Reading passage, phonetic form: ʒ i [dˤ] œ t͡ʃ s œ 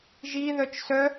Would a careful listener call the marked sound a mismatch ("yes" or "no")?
yes